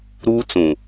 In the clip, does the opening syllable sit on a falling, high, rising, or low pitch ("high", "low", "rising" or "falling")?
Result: high